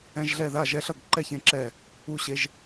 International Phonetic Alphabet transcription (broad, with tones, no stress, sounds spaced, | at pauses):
ɛ̃˦ ʒ ɮ ɛ˥˨ ð a˥˨ ʒ ɛ˦ ɬ ʌ˥˨ ɡ ǃ ɛ˥˨ ç ẽ˦ ǁ ɛ˥˨ | u˥˨ ɕ e˦ ʒ